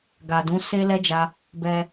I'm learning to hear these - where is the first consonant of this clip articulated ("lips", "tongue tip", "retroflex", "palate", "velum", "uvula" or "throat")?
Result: velum